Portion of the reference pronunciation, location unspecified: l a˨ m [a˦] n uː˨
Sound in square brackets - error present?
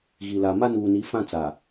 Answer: no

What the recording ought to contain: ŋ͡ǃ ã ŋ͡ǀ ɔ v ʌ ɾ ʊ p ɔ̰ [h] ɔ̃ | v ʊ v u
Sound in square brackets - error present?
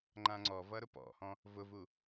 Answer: no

